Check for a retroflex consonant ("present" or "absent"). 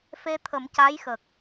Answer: absent